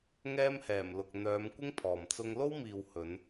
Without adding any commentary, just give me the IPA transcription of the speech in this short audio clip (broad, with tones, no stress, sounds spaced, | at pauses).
ŋ ɛː˥ m h ɛː˨˩ m l ʊ˨ k̚ n̪ œː˨˧ m kʷ ɪ˥ ŋ pʰ ɔː˨ m t͡s ʊ˥ ŋ l o˥ w m iː˨ w h ɵ˨˧ n